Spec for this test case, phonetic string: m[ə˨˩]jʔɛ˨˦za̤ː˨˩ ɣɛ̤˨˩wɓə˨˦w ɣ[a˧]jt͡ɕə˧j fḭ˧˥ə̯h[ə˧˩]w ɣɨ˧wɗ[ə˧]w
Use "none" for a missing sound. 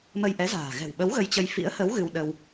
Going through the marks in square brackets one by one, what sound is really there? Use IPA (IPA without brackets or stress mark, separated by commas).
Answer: ə˧, ə˧, ə˨˦, ə˧